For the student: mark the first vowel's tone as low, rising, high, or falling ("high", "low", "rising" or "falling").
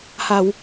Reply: low